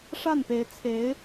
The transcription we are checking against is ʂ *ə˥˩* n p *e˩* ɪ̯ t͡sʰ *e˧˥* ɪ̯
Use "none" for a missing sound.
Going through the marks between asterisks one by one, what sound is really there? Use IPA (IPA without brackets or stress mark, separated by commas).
a˥˩, e˧˥, e˧˥